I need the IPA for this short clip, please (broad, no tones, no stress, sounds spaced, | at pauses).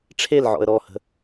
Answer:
ʈ͡ʂʰ e l ʕ ɔ̰ ə̯ ɾ ɔ h ə̤